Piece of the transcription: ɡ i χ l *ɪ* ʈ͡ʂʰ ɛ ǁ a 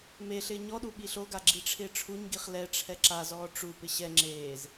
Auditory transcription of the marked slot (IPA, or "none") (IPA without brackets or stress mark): ɛ